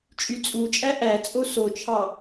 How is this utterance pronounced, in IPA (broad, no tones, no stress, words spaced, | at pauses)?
t͡ʃʼyt͡sʼut͡ʃʼæ ʔæt͡sʼo sot͡ʃʰɑ